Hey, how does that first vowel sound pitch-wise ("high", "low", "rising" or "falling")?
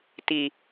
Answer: low